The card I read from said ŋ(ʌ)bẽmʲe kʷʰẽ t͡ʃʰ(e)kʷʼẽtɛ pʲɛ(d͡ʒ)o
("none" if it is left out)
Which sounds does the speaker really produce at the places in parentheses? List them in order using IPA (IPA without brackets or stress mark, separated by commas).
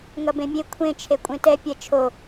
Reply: ʌ, e, t͡ʃʰ